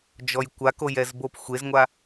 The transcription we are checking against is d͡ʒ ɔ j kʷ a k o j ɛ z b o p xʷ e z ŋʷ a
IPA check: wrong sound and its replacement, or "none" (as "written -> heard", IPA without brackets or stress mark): none